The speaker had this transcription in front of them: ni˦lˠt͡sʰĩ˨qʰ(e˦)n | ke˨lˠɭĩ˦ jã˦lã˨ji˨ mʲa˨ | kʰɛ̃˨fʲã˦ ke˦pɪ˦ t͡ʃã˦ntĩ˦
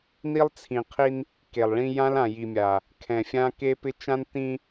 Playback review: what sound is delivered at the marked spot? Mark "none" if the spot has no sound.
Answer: i˦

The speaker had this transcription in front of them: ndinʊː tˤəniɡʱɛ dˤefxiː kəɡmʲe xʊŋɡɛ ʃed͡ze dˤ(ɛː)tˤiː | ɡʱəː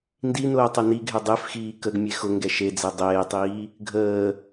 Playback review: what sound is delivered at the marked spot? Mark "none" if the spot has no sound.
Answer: eː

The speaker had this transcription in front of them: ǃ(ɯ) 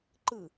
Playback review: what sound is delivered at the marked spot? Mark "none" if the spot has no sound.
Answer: ɯ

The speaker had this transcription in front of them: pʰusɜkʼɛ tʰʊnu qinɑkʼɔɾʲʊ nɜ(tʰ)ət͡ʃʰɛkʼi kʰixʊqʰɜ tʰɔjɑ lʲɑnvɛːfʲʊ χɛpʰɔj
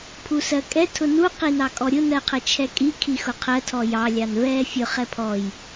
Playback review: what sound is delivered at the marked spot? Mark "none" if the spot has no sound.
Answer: qʰ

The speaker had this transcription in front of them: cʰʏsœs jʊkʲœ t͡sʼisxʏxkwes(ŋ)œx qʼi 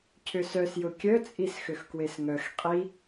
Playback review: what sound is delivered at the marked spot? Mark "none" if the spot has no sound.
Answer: ŋ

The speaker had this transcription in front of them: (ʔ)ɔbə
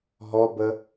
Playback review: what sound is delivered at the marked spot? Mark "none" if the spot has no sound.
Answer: ɦ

